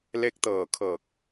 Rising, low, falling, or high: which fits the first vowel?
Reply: rising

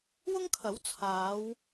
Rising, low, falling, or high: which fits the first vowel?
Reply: high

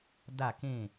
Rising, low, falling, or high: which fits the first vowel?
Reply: falling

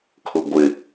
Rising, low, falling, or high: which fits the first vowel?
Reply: low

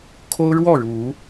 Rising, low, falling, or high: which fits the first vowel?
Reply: high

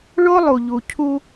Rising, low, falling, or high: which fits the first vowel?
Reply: high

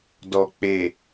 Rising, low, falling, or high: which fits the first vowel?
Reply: low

